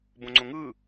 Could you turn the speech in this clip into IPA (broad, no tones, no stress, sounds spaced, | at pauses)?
b õ ŋ͡ǀ õ ŋ ɯ